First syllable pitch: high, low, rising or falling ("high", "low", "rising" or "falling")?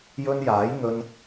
high